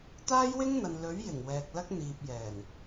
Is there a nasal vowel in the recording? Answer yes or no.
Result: no